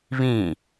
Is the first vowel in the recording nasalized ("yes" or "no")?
yes